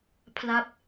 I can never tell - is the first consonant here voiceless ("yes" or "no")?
yes